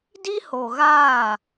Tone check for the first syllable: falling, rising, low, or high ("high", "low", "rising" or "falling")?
high